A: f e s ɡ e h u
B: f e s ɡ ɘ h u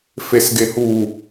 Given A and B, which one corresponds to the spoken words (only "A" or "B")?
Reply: A